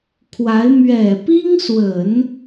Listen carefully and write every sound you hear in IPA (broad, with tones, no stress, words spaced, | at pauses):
kʰwa˧˥ɪ̯ mɥɛ˨˩pi˥ŋswə˨˩˦n